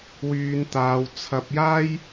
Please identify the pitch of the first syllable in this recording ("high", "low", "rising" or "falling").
high